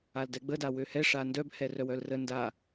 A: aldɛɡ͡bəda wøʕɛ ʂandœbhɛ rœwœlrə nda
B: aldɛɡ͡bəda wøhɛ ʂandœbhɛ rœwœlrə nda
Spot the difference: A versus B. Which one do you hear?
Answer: B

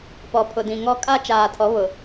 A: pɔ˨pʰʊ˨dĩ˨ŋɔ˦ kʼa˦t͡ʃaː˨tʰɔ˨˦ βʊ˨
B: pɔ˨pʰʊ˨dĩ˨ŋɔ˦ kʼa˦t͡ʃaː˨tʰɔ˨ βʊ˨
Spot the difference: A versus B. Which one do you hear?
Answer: A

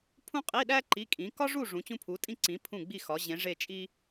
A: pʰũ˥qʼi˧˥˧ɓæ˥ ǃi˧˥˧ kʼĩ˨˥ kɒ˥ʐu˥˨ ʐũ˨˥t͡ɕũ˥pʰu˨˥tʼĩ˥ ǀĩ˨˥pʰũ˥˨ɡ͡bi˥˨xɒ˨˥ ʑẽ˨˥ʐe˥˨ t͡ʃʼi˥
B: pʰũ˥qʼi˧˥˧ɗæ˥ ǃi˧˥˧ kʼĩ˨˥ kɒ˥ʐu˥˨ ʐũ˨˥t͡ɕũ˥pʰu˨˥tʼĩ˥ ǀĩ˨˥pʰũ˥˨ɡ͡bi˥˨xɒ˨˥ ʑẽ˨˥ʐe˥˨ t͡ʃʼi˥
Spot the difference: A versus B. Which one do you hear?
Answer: B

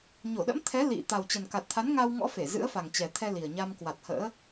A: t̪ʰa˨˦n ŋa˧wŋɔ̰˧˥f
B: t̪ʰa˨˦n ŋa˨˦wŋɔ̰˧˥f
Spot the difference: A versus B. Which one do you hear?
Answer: A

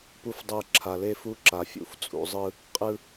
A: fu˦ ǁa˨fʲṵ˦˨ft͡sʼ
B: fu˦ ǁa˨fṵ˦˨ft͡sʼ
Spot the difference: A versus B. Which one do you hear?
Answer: A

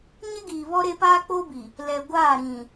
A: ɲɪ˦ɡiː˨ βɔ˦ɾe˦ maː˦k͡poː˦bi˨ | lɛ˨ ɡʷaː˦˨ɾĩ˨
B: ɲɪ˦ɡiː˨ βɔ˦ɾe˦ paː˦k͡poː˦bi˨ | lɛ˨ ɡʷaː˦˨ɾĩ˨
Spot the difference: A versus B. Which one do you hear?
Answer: B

